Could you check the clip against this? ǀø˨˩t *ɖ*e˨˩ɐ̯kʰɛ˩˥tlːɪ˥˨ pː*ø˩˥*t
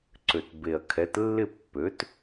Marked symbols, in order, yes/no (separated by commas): no, yes